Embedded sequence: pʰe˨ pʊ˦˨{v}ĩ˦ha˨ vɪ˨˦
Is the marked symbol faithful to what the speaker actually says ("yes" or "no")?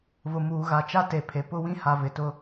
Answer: no